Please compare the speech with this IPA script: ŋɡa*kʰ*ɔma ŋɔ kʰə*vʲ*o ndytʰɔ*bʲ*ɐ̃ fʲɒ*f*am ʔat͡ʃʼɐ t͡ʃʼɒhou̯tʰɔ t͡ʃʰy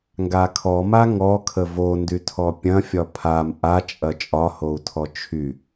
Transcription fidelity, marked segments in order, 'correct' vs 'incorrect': correct, incorrect, incorrect, incorrect

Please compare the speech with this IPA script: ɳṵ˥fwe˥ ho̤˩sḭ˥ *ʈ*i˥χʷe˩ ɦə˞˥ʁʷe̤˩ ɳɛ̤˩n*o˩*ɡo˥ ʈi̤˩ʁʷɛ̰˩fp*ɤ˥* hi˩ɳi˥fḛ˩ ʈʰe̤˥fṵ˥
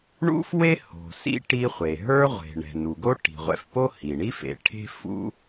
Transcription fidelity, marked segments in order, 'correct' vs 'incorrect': correct, incorrect, incorrect

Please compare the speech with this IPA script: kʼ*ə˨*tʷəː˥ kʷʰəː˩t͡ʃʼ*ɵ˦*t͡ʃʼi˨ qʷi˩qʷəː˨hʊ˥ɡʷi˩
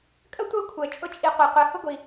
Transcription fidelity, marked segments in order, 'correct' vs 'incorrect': incorrect, incorrect

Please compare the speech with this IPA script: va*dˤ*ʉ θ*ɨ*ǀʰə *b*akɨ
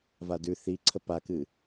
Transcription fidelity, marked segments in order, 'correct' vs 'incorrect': incorrect, incorrect, incorrect

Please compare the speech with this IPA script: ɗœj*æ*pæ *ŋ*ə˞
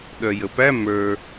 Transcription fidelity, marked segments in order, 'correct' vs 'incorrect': incorrect, incorrect

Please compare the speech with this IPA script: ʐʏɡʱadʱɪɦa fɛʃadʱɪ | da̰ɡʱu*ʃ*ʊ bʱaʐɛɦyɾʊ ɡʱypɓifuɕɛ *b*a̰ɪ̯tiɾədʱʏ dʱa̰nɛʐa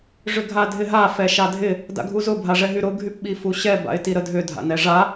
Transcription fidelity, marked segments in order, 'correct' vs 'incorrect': incorrect, correct

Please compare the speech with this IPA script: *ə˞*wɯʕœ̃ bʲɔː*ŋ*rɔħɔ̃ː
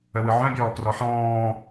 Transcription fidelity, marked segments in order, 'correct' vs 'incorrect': incorrect, incorrect

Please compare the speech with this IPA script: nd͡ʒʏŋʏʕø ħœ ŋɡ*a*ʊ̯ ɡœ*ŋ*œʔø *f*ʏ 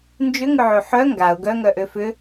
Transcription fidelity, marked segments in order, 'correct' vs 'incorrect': correct, correct, correct

